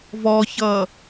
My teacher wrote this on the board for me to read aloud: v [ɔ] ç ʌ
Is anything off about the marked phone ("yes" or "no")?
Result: no